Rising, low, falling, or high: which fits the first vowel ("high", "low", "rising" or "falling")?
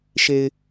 low